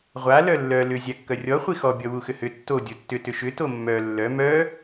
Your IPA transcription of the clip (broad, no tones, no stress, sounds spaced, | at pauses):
ʁʷ a l œ lː œ l ʏ zʲ a kː œ rʲ ɔ χʷ i x ɔ bʲ ɔ w u x ʏ h ʏ tː o dʲ o tː ʏ t ʏ ʃ ʏ t o mː œ lː œ m œ